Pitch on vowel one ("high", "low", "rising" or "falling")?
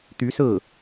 rising